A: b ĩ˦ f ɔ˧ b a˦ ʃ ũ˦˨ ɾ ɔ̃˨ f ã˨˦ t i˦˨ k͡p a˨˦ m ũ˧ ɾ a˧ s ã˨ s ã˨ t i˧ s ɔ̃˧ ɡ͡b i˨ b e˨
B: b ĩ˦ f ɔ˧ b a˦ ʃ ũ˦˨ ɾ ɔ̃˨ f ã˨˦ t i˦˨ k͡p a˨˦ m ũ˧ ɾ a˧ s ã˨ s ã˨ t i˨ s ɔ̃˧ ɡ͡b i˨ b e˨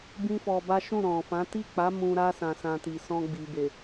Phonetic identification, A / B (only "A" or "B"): B